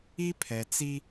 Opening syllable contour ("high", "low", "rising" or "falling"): high